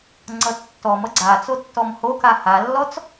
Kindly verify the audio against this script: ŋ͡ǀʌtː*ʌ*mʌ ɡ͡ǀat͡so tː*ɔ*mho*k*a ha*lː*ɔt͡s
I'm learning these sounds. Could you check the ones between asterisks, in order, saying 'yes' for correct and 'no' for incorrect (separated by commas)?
no, yes, yes, yes